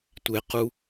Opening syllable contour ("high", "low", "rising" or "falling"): low